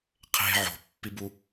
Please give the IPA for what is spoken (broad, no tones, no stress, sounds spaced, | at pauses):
qʰ e̤ ʕ o̤ pː i b u